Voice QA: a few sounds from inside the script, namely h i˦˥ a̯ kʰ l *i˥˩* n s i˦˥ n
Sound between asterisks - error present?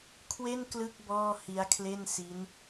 yes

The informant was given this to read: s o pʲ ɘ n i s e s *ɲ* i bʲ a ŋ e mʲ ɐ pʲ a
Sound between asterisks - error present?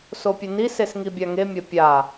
yes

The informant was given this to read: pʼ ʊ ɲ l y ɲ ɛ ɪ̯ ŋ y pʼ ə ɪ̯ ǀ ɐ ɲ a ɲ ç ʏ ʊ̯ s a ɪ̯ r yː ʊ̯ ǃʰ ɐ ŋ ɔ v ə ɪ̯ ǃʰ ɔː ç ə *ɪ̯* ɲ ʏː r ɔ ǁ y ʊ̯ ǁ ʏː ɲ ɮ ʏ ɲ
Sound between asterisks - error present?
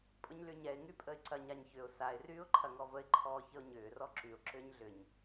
yes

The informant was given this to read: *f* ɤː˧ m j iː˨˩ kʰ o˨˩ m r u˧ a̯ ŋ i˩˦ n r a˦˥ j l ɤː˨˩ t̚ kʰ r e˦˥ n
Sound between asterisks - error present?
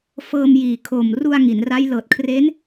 no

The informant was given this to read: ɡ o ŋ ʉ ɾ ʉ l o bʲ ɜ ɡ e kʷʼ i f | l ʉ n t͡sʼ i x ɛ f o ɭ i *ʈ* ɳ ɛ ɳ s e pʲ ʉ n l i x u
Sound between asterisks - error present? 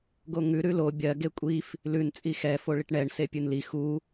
no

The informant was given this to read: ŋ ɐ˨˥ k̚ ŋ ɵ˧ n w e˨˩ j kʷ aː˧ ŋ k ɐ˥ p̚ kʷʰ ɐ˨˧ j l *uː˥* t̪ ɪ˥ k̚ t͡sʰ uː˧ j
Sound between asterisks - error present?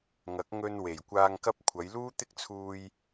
no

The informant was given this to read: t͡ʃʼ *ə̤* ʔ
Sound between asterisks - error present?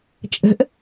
no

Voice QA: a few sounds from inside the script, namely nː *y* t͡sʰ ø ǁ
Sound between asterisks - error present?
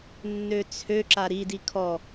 yes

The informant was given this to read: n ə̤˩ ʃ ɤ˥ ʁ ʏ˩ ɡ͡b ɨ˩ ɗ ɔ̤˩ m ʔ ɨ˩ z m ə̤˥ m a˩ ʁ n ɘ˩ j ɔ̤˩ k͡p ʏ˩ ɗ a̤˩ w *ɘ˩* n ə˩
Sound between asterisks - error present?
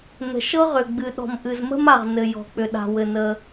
no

